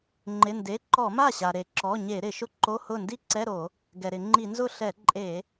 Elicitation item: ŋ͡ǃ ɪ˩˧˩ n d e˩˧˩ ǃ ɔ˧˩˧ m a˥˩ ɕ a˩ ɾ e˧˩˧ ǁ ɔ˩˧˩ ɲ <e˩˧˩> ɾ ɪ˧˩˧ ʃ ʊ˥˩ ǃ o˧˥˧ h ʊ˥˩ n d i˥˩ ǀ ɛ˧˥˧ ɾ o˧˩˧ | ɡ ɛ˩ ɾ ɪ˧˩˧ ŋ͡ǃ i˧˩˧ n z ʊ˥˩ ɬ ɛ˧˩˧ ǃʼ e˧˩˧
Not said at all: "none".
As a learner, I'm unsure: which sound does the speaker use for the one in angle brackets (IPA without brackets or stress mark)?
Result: e˧˩˧